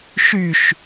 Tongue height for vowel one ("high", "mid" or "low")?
high